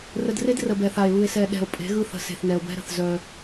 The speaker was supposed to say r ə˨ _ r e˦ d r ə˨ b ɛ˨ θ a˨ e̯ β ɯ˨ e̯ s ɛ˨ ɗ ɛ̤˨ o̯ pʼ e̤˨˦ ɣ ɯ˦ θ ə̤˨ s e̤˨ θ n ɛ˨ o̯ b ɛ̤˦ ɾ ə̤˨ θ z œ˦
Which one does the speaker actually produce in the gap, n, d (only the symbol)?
d